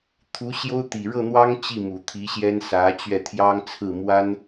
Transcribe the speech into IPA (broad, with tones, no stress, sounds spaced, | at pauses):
t̪ʰ u˧˥ ɕ j o˥ ʊ̯ t̪ i˨˩ ɻ ɤ˥˩ n̪ w ɑ˥ ŋ t͡ɕ i˥˩ m u˨˩ t̪ʰ i˧˥ ɕ j ɛ˥ n s ä˧˥ t͡ɕ ɥ ɛ˥˩ t̪ʰ j ɑ˥ ŋ t͡sʰ ɹ̩˥˩ m w a˥ n